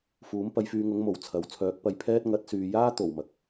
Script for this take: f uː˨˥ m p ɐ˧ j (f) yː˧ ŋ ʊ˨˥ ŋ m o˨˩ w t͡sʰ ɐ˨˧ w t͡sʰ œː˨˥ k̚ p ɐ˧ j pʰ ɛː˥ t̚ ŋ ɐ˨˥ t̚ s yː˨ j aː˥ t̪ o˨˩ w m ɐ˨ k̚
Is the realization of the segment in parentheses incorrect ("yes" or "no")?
no